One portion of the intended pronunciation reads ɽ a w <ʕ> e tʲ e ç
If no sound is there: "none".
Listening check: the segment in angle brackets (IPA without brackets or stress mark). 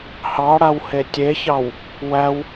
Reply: h